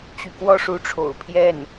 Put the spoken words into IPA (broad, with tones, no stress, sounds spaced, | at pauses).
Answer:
t͡ɕ y˧˥ k w ɔ˥ ʂ u˧˥ ʈ͡ʂʰ o̰˨˩ ʊ̯ pʰ j ɛ˥˩ n